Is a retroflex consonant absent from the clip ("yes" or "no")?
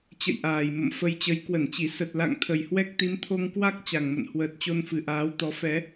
yes